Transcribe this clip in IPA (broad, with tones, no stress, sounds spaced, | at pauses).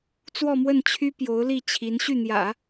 t͡s w ɔ˥˧ m w ə˥˩ n t͡ɕʰ y˥ p j o˧˥ ʊ̯ l i˥˩ t͡ɕʰ i˧˥ n ɕ y˥˩ n̪ j ä̰˨˩˦